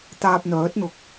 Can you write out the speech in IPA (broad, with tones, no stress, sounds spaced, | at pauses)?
t̪ aː˧ p̚ n̪ œː˨˥ t̚ n̪ ʊ˧ k̚